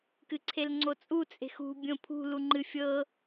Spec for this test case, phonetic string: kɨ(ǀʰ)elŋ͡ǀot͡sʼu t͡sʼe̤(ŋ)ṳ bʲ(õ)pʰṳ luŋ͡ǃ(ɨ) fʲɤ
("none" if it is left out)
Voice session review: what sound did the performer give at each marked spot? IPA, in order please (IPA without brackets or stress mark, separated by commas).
ǀʰ, x, õ, ɨ